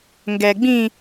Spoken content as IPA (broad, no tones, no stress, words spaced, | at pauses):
ŋɡɛɡ͡bĩ